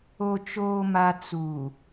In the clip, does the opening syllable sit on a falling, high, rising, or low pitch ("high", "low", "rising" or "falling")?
low